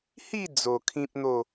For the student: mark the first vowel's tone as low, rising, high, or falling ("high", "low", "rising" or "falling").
falling